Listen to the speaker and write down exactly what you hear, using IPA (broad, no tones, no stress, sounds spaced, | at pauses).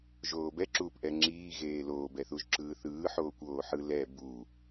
ʒ oː b ɛ ǁ uː p ʔ ɛ ŋ͡ǁ iː ɣ eː l oː b ɛ θ u ʒ ǁ ɯː θ ɯː ħ oː kʷ oː ħ ɯ l ɛ b u